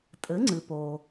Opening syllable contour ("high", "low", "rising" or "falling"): rising